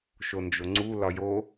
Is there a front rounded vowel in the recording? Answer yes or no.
no